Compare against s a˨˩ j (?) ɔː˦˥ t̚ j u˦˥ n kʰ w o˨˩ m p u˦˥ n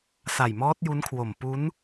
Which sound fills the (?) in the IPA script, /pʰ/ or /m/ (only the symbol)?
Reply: m